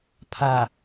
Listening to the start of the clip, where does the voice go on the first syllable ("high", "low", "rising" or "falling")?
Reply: low